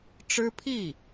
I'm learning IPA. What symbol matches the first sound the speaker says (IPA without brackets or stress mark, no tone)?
ʈ͡ʂ